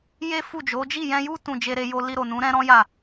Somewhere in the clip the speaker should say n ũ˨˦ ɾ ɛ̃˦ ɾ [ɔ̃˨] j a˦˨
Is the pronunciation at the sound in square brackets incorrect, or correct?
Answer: incorrect